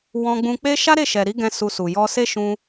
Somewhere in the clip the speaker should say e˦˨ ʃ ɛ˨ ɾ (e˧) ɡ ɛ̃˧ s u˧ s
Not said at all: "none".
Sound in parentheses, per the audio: i˧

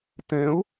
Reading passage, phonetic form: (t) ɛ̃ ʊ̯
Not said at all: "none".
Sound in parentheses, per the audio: t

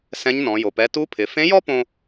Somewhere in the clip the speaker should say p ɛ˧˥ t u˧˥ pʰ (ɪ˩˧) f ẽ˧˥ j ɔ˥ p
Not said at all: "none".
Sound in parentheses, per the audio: ɪ˩˧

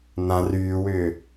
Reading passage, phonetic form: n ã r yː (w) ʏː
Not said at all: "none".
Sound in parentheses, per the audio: w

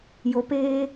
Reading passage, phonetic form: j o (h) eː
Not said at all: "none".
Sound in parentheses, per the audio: p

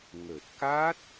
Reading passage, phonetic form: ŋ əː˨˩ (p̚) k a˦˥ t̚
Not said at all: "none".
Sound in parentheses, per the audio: t̚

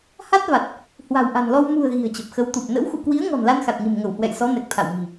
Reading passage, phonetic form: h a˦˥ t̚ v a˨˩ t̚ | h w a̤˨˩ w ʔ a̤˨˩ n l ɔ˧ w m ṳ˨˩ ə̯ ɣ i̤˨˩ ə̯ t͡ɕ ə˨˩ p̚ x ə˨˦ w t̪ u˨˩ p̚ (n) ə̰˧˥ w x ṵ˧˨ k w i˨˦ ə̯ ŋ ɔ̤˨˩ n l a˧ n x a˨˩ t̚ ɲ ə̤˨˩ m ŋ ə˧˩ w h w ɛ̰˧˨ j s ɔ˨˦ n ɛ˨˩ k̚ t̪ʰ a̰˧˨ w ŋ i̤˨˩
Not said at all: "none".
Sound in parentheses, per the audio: n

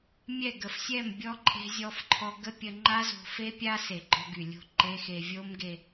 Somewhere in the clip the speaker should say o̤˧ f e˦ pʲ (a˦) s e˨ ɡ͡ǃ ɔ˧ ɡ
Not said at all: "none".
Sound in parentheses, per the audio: a˦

